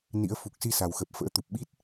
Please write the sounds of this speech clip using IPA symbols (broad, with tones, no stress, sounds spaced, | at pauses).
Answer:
n ḭ˧˥ ə̯ f u˨˩ k̚ s i˧ s a˨˩ w x ə˨˩ p̚ f ə̰ː˧˥ t̪ u˨˩ p̚ ɓ i˦˥ t̚